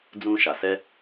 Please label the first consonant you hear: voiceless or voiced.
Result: voiced